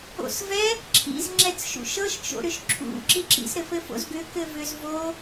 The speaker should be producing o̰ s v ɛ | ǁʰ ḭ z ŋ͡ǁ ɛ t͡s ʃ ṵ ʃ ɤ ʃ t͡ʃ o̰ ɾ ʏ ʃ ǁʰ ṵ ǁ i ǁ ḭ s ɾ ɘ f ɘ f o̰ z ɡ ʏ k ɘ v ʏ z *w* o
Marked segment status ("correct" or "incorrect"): incorrect